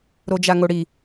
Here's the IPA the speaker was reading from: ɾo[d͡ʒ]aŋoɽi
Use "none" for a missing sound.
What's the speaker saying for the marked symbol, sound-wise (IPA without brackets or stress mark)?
d͡ʒ